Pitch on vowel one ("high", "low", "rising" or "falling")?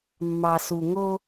low